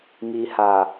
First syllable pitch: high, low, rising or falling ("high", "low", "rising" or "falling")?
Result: low